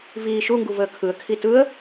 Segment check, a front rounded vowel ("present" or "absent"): absent